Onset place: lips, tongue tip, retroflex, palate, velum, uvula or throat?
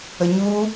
palate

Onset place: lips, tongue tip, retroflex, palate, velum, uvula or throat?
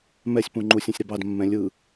lips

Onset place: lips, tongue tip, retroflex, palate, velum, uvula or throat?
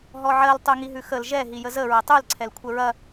throat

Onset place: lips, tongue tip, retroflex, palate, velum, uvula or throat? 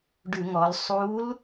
retroflex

